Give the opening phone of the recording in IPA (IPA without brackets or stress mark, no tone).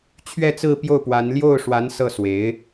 t͡ɕʰ